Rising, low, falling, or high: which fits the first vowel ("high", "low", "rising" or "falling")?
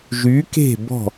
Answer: rising